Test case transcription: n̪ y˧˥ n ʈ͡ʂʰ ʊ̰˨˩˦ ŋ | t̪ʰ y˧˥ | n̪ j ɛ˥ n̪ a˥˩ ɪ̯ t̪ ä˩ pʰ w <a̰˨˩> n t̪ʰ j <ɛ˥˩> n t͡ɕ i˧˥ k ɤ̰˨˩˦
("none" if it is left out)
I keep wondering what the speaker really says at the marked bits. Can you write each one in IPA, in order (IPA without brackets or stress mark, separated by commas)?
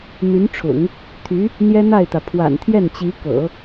a̰˨˩, ɛ˥˩